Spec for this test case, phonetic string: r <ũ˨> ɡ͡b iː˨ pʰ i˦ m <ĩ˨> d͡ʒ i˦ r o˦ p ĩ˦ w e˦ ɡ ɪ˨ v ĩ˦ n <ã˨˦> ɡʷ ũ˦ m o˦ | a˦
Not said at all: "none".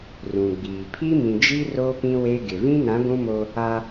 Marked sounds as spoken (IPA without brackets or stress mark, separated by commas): ũ˨, ĩ˨, ã˨˦